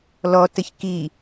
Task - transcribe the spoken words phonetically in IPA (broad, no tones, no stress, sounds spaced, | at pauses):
l ɔ t ə ç k i